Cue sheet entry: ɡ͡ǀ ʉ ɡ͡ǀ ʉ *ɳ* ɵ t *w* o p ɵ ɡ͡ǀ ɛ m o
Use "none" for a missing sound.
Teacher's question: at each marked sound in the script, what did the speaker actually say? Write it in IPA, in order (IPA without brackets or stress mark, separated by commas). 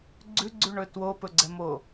ɳ, w